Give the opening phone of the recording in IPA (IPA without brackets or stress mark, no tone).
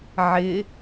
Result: ʕ